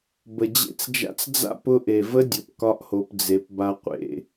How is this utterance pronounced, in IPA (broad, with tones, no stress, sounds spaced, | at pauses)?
b ə˨ d͡ʑ ḛ˦ t͡s d͡ʒ a̰˦ t͡s d͡z a̰˦ p ʊ˧ ʔ e˨ v ə˦ dʲ ʊ˨ p k ɒ˦ ʔ h o˧ p d͡z e˧ p b a˦ qʷ ḛ˦